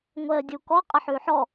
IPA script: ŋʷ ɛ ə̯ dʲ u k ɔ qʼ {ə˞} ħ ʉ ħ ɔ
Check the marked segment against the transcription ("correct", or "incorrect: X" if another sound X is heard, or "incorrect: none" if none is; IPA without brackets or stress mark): incorrect: ə